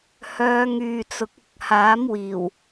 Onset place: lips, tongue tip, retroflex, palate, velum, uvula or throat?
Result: throat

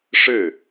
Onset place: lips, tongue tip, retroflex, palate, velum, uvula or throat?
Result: retroflex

